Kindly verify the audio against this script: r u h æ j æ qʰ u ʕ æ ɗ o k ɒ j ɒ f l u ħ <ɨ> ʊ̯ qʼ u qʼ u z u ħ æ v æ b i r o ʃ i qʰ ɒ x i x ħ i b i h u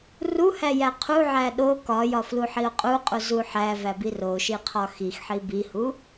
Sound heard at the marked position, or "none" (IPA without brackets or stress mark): i